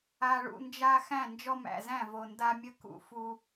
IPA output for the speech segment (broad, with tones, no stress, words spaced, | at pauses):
a˨ɭṵ˨nd͡ʒa˦ xæ̃˦˨nd͡ʒɔ˦mæ̰˨zæ̃˦˨ vo˨nda˦mʲə˦ kṵ˨fu˦